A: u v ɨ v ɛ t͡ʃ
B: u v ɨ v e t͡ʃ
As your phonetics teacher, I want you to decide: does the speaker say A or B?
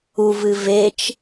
B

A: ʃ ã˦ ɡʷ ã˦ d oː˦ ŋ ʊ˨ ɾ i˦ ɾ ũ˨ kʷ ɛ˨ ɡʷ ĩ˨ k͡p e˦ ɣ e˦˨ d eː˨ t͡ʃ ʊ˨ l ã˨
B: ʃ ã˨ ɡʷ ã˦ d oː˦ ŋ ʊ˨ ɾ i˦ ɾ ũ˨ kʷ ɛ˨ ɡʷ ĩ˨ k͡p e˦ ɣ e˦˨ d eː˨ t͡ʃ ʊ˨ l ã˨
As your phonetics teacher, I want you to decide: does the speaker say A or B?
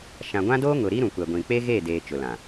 B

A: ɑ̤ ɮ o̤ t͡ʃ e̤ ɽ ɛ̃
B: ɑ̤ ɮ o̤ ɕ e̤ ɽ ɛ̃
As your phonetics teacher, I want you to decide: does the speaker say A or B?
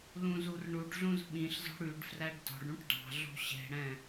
B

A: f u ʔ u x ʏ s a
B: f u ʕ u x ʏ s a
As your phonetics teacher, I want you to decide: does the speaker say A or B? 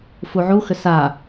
B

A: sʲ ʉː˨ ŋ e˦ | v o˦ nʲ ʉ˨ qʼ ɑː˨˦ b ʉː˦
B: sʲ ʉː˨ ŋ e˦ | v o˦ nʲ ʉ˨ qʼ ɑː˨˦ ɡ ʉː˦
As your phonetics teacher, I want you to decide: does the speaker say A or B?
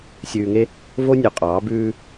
A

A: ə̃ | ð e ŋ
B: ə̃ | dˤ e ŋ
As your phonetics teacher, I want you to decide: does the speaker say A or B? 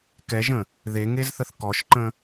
A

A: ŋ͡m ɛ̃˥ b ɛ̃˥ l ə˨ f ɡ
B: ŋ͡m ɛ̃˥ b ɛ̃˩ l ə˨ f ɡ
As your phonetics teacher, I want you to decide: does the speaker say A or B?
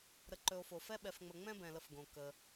B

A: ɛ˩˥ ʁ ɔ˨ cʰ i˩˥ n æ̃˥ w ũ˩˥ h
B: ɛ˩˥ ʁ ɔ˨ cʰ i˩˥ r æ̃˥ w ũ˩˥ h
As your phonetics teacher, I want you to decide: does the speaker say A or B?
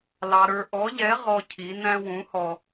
A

